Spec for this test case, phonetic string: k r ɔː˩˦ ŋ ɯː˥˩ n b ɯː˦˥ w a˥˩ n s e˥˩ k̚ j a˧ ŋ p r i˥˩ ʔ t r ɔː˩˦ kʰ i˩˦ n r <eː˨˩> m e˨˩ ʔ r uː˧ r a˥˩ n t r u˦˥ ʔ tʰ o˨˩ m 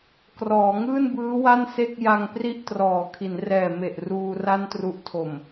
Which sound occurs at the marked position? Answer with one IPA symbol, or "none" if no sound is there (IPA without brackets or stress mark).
ɛː˨˩